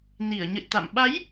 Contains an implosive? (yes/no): yes